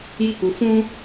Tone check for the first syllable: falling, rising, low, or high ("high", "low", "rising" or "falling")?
falling